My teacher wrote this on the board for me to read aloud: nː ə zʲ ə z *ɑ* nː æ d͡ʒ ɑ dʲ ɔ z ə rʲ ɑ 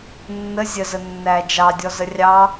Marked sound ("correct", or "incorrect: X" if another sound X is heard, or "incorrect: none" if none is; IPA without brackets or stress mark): incorrect: ə